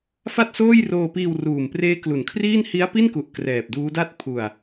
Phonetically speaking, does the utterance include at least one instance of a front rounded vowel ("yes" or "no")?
no